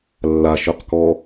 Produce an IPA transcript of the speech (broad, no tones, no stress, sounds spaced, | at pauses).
lː a ʃ œ q k ɔ